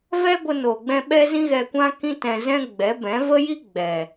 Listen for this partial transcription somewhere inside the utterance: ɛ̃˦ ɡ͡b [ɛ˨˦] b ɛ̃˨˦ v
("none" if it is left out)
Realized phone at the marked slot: ɛ˨˦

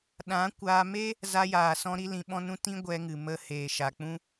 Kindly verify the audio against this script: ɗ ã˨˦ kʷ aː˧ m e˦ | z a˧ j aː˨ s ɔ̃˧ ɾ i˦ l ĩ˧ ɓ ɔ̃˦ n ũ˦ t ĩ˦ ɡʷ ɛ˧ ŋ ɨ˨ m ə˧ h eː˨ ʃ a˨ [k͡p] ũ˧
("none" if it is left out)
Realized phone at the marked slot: k͡p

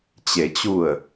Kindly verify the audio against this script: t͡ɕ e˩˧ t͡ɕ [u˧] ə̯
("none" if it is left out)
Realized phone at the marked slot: u˧˩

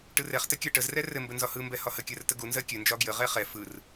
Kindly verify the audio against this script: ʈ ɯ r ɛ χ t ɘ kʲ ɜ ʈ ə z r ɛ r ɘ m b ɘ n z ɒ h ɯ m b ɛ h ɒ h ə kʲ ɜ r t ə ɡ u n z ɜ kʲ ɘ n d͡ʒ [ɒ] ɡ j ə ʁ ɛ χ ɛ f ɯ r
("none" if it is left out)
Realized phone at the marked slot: ɒ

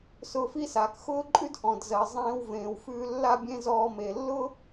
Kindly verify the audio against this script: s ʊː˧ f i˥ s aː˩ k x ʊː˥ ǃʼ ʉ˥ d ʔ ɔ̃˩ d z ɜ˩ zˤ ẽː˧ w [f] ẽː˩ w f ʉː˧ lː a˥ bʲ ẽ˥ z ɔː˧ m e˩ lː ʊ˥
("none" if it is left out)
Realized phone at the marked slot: v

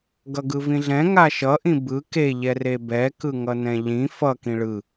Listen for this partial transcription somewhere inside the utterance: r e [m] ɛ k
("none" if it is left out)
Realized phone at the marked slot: b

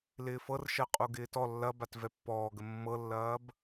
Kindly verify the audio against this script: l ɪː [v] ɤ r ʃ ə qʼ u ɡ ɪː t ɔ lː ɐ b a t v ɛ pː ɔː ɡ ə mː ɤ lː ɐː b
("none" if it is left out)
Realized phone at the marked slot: f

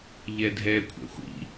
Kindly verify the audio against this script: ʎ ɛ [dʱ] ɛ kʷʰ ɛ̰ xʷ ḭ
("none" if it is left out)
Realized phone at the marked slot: dʱ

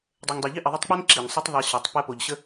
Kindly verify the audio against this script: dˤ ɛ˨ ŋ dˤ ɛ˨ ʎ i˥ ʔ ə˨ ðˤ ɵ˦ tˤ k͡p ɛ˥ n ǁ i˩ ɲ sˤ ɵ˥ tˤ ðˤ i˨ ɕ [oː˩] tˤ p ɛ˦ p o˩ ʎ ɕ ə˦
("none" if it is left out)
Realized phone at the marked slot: o˩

